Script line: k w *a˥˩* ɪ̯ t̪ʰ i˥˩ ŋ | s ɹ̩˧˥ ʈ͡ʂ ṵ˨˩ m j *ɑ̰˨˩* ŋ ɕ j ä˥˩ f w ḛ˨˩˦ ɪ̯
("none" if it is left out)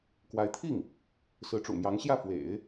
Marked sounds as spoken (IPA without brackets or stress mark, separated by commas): a˧˥, ɑ˧˥